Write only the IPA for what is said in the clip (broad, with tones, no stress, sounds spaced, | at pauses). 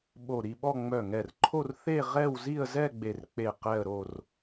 ɓ o˧˩ ɾ i˥˧ ɓ ɔ˥˧ ŋ͡m œ˧˩ ŋ ɛ˧˩ r ǃʰ o˥˧ r θ e˥˧ ʁ ɛ˥˧ w z i˥˧ ə̯ z ɛ˥˧ ɡ͡b e˧˩ r k͡p e˧˩ q ɛ˥˧ ə̯ ɾ o˥˧ r